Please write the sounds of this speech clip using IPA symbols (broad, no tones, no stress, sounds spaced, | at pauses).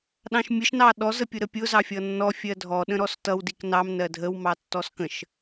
ɗ ɑ̃ ʃ mʲ ə ʃ n ɑ ɗ ɔ z ə pʲ ʊ ɾ ə pʲ ʊ z ɑ fʲ ʌ nː ɔ fʲ ɜ dʱ ɔ ɗ ə̃ ɾ ɔ s t ʌ w d i k n ɑ m n ɜ dʱ ə w m ɑ tː ɔ s k ə̃ ʃ